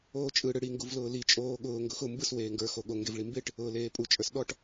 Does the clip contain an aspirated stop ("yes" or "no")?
no